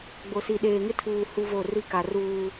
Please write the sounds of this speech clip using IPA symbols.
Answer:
ɡ͡b o˨ s i˨ ɗ eː˨ ŋ ɪ˦ tʰ uː˨ h u˦ v o˦˨ r i˦ k a˨ r uː˦

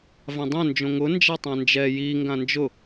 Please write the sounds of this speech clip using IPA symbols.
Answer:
v ã dˤ õ n d͡ʒ õ ŋ ʊ n d͡ʒ a tˤ ã n d͡ʒ ɛ j i ŋ ɡ ã n d͡ʒ ʊ

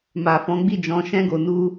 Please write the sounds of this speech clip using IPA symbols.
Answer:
m a˨ f ɔ̃˨˦ ɡ͡b i˦˨ d͡ʒ ɔ̃˧ ʃ ɛ̃˦ ɡ o˧ n u˦

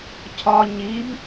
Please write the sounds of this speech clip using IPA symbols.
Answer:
cʰ ɒ ɲ i b

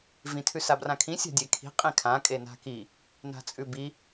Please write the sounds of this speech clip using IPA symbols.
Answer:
v ĩ tʰ ʉ s a b r ã kʰ ĩ sʲ a̤ dʲ e kʰ i̤ qʼ ĩ kʰ ã kʼ e n a̤ k i | n a̤ t͡sʼ ʉ b i

